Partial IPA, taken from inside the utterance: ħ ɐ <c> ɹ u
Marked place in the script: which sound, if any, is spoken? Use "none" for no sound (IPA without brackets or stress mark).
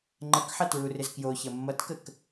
t